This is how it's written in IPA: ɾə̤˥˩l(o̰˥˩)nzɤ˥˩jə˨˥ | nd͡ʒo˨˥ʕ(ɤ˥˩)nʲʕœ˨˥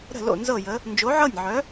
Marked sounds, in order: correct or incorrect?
correct, correct

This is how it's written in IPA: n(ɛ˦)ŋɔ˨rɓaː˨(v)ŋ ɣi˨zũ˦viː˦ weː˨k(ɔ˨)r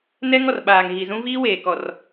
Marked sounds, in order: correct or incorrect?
correct, incorrect: none, correct

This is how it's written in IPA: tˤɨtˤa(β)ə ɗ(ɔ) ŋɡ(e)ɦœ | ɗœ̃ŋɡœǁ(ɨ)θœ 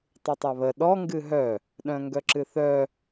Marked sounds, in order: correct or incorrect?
correct, correct, incorrect: ɨ, correct

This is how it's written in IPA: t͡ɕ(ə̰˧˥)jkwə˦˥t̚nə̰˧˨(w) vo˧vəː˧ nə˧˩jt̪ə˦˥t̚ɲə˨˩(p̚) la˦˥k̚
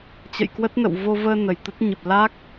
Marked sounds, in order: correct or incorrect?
incorrect: ə̰˧˨, correct, correct

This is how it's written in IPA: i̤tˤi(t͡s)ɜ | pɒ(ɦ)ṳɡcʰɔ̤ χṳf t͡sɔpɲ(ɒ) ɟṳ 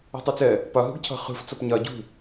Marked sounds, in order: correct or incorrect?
correct, correct, correct

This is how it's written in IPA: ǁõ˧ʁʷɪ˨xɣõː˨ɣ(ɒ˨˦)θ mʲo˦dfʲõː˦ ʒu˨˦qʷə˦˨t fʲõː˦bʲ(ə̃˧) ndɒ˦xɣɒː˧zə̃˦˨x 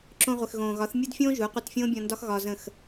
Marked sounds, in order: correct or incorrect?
correct, incorrect: ɔ̃˧

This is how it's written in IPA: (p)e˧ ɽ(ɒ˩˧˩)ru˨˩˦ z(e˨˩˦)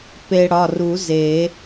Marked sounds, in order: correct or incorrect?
correct, correct, correct

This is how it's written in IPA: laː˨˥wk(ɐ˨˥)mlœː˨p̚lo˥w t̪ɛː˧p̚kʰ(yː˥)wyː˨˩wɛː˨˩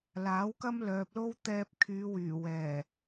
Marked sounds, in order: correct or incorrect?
incorrect: ɐ˥, incorrect: yː˨˧

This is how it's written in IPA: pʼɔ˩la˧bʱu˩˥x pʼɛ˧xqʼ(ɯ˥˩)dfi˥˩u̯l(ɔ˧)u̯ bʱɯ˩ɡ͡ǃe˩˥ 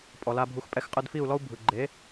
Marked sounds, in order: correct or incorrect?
correct, incorrect: ɔ˥

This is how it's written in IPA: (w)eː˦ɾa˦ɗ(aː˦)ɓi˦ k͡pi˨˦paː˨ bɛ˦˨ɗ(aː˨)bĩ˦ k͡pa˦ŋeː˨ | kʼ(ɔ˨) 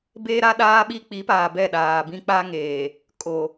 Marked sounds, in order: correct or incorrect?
incorrect: b, correct, correct, incorrect: o˨

